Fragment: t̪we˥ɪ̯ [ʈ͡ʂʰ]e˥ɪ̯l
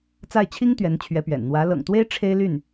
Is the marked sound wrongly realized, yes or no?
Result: no